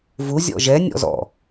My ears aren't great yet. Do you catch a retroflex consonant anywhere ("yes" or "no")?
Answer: no